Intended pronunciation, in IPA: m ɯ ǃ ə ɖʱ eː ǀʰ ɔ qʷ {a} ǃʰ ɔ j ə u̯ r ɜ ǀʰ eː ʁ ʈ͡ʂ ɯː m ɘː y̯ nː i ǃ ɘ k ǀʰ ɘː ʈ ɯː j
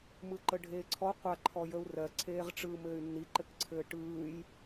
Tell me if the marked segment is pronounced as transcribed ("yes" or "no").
yes